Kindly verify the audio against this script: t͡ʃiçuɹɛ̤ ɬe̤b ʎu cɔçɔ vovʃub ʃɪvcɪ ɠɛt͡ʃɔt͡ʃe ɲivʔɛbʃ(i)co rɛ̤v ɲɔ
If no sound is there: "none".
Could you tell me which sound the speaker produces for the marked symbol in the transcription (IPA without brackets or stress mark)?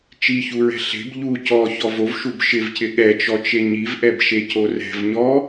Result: e